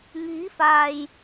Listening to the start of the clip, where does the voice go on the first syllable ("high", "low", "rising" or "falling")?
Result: rising